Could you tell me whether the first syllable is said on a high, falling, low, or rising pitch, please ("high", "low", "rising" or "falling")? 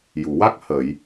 low